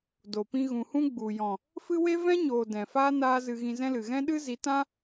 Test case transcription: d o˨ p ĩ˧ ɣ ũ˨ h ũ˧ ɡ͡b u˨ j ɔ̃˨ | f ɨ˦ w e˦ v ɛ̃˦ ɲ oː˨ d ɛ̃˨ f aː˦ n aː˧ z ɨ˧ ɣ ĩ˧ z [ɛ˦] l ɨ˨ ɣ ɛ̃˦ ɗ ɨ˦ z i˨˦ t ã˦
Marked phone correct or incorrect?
incorrect: ɛ̃˦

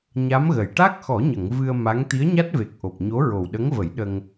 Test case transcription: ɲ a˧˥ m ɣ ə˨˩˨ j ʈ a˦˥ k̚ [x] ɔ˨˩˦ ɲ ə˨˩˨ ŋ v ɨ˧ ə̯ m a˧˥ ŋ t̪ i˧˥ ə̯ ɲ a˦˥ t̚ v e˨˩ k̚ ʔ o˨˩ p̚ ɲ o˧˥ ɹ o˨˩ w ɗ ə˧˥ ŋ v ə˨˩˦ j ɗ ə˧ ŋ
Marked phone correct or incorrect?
correct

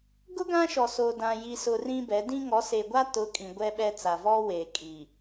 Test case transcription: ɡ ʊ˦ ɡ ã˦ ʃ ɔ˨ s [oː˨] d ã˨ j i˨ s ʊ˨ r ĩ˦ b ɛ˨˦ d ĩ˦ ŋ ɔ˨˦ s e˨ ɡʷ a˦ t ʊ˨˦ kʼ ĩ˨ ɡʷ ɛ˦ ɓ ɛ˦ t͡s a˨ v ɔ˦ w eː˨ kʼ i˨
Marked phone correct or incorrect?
correct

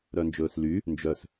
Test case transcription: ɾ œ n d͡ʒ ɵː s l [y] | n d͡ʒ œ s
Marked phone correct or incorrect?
correct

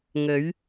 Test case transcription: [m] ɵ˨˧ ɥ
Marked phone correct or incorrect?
incorrect: ŋ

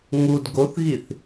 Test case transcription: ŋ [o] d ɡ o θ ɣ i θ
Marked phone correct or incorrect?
incorrect: u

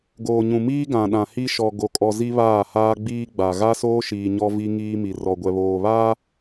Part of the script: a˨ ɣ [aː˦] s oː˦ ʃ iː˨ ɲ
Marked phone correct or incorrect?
incorrect: a˦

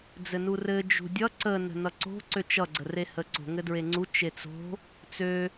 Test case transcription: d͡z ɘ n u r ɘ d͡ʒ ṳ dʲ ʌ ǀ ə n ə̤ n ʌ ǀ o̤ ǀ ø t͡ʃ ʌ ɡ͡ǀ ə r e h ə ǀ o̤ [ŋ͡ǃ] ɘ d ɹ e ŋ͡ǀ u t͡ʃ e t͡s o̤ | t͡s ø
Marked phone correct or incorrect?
incorrect: ŋ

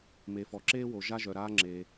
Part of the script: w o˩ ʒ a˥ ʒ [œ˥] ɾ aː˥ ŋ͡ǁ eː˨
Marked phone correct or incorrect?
incorrect: œ˩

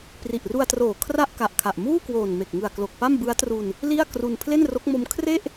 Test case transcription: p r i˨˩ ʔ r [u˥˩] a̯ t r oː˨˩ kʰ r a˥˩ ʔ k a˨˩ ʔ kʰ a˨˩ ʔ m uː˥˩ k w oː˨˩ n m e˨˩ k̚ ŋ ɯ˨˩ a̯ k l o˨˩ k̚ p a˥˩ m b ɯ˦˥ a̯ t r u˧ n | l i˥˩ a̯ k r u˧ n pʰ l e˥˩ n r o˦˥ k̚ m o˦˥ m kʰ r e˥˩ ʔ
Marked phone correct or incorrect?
incorrect: u˧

